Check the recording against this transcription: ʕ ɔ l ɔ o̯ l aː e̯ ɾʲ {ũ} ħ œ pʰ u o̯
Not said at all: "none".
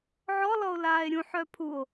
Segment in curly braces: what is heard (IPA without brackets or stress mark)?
ũ